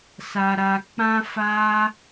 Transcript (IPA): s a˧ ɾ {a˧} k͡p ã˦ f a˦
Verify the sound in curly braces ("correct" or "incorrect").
correct